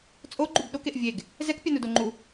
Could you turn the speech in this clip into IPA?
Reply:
t͡sʼoɡ͡ǃub ɗokeʔ vʲeɡ | zɛkpʲanudo ŋ͡ǃu

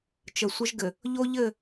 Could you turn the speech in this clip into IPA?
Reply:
t͡ʃə˨sʷə˦ʒɡɘ˨ | ʎo˦ʎɘ˦˨

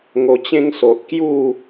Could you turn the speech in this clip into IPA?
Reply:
ŋo˧t͡ɕẽ˦ŋso˨ʔ kju˥˧

